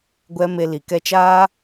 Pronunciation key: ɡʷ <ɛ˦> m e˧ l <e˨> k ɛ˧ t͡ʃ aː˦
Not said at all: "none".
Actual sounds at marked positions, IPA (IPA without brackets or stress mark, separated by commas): ɛ˦, i˨